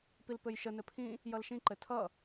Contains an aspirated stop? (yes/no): yes